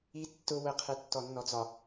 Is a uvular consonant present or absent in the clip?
present